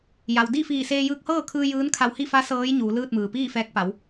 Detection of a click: absent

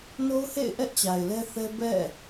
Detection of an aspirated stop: absent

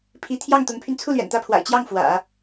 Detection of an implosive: absent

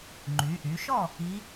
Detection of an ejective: absent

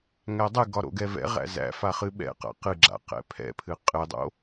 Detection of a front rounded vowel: absent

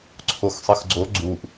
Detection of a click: present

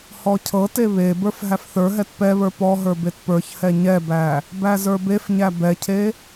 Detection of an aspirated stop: present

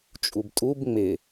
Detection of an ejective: present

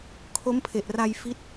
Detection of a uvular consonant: absent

